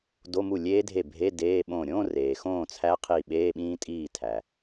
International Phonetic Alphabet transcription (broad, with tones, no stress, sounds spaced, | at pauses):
d o˧˥˧ m u˥˩ lʲ eː˦˥ dʱ e˥˩ bʱ e˧˥˧ d eː˧˥˧ ɓ õ˥˩ ɾʲ õ˧˥˧ r eː˩ x õː˥˩ t͡sʰ æ˦˥ qʰ i˧˩ ɓ eː˧˥˧ ɓ ĩː˦˥ tʼ iː˥˩ tʰ æ˩